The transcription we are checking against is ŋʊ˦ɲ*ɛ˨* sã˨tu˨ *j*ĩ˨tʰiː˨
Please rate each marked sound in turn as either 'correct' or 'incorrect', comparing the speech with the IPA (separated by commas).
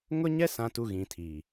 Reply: incorrect, incorrect